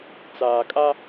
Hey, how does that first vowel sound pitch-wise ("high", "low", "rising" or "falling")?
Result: low